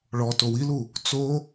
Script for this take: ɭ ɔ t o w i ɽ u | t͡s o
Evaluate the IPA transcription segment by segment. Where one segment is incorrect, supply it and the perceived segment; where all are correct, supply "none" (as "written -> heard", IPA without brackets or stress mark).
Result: ɽ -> l